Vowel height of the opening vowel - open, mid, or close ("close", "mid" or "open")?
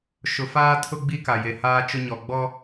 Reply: close